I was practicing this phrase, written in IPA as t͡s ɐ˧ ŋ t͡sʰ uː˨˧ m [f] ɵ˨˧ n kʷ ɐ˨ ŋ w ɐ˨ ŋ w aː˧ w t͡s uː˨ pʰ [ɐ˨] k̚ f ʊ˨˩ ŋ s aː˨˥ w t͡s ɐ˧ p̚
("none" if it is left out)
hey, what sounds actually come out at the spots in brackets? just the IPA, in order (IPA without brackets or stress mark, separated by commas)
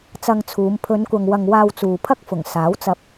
pʰ, ɐ˥